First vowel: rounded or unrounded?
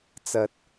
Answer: unrounded